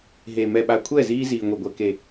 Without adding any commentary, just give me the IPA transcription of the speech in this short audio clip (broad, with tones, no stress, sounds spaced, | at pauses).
ɦ e˨ m ɛ˨ ɓ a˨ kʷʰ ɛ˦˨ z iː˦ z iː˨ ŋʷ e˨ ɡʷ ɛ˨ k e˨